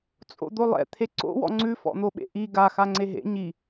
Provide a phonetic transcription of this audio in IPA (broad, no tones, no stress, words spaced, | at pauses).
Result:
t͡sʼo̰d̪olˠɛ̰ t̪ʰeǀo̰ wɔ̰ŋ͡ǀʉ fɔ̰n̪oɓḛʔi ɡa xaŋ͡ǀeɦḛ ɲi